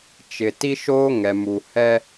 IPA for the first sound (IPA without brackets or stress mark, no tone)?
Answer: t͡ʃ